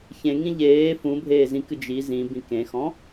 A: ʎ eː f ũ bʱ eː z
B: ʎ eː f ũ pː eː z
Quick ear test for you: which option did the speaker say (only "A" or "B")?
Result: A